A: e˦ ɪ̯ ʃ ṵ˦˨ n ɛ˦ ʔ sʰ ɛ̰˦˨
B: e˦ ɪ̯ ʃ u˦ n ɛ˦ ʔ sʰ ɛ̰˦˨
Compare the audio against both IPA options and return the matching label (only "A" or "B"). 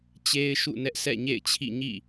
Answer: A